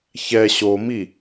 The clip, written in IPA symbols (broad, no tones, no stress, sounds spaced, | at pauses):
ç ɛ ɕ o m i